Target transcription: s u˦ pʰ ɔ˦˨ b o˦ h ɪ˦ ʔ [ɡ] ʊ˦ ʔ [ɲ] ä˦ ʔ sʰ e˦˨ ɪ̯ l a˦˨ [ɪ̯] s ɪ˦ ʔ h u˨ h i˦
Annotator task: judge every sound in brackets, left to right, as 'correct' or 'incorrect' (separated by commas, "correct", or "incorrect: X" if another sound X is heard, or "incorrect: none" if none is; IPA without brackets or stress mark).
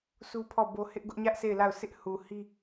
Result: correct, correct, incorrect: ʊ̯